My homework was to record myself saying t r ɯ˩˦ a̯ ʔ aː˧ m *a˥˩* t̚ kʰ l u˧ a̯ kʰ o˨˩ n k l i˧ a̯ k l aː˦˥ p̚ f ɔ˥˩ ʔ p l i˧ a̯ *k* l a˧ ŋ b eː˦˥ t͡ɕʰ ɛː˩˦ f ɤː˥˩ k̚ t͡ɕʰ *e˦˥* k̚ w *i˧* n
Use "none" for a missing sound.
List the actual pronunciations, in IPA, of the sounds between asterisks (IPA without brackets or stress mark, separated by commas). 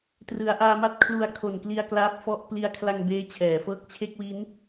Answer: a˥˩, kʰ, e˥˩, i˦˥